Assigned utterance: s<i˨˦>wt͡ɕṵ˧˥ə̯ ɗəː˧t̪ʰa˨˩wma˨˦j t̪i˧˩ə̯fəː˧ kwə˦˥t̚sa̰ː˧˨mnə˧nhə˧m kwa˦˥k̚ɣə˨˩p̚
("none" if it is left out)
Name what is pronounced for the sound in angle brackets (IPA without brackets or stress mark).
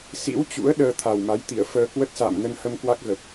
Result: ḭ˧˥